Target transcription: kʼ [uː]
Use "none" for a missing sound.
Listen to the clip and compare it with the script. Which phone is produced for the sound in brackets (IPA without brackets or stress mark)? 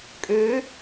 øː